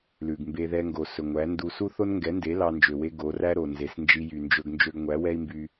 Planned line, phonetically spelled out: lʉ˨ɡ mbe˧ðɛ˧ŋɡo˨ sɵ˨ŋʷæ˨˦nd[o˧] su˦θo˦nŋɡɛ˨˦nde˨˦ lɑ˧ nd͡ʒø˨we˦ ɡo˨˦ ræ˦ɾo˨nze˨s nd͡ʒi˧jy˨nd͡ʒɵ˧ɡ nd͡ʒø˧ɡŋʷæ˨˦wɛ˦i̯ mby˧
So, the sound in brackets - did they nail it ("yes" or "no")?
no